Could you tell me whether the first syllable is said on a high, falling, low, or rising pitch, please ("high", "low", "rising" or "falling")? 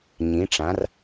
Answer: rising